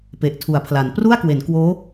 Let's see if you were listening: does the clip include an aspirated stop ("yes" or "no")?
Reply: yes